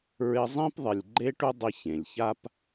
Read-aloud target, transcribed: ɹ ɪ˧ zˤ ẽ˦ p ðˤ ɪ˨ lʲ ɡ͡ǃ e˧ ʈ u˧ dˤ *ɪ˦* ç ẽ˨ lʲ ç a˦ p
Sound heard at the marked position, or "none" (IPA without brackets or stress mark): ɪ˧